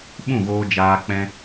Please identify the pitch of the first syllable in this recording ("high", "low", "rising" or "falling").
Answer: falling